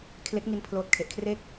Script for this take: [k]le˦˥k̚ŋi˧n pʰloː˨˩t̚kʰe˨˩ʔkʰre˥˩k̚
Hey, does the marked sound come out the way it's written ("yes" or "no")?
no